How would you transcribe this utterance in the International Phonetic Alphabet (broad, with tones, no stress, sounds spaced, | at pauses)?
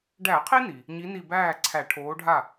ɖ æ˧˩˧ qʰ i˦ n i˩ | ɲ i˨˥ n i˧˩ b æː˥˩ ǀʰ æ˧˩˧ ʈʰ oː˨˥ ɖʱ a˥˩